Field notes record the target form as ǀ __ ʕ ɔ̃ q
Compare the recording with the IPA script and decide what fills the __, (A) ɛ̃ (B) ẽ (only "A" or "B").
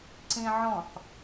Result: B